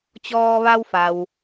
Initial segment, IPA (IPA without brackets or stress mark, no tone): t͡ɕ